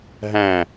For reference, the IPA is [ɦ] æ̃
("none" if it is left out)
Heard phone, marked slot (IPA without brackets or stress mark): ɦ